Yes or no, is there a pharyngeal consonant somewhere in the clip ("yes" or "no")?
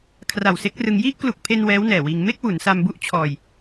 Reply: no